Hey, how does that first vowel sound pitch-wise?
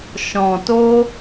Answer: low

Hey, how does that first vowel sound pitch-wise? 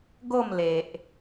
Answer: falling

